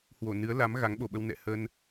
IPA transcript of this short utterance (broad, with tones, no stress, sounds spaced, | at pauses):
h w o˧˩ n ɨ˨˦ ə̯ l a˨˦ m ɣ a˨˦ ŋ ɓ o˨˩ ɓ ə˧ w n ɛ̰˧˨ h ə˧ n